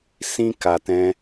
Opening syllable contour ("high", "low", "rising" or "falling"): high